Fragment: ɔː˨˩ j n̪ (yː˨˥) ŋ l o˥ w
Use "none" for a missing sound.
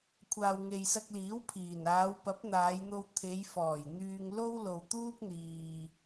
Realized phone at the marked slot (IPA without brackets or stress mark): yː˧